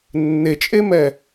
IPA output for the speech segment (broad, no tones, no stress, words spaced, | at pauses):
nːet͡ʃʼemɛ